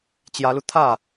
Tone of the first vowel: rising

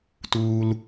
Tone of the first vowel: low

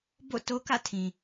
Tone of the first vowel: falling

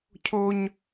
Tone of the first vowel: high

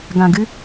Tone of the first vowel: low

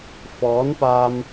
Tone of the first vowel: rising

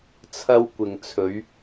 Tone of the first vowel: high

